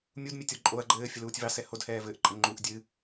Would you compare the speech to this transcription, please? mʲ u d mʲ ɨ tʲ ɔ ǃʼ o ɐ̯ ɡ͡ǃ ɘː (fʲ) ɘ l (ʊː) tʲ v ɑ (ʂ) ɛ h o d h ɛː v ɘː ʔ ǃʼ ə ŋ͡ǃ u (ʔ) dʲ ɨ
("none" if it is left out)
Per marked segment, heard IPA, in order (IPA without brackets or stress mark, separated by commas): fʲ, uː, s, ʔ